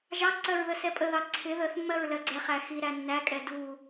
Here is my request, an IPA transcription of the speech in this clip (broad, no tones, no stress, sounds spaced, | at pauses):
ʒ ɑ ǀ ɜ ɹ ð ə s ɛ pʼ ə ð ɑ ǀʰ ɪ ð ə θ mː ɜ ɹ l ɜ ɡ͡ǀ ɛ χ æ x i ɾ æ nː æ kʼ ɛ d u